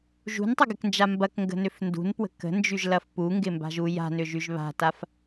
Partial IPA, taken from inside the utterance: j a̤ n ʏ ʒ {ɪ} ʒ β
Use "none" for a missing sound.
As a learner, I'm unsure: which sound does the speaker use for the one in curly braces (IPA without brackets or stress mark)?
y